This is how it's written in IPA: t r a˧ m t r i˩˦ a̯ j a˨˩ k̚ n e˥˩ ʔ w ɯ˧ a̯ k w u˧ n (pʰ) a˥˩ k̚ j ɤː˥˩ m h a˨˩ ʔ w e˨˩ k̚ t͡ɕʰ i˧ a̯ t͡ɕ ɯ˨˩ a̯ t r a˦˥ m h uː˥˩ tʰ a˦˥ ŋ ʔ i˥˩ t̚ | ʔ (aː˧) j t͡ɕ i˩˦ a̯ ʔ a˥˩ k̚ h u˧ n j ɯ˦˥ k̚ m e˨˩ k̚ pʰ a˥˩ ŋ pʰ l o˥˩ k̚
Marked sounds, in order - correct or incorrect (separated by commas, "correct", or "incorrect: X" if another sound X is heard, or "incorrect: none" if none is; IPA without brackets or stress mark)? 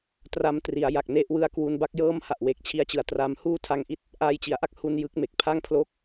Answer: incorrect: b, correct